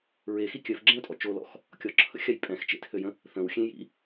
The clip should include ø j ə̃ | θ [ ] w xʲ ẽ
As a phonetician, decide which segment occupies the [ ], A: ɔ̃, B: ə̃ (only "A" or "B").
B